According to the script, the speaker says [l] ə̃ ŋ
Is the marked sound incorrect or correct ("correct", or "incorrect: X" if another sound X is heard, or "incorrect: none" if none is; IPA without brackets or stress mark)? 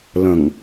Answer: correct